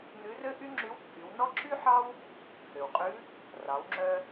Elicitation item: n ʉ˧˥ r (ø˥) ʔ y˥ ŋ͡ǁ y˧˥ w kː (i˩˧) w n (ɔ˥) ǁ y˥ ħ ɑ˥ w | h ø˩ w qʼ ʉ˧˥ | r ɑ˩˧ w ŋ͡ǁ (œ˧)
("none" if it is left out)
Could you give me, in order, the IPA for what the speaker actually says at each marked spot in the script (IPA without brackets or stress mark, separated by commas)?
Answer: ø˥, y˩˧, ɔ˥, œ˧